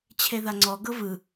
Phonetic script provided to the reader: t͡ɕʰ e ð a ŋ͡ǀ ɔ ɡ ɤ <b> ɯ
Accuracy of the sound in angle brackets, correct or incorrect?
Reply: incorrect